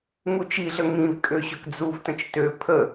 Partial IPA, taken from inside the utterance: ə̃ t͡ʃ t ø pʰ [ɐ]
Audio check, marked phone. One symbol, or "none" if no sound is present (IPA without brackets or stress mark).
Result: ə